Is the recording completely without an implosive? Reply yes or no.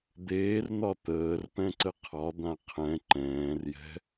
yes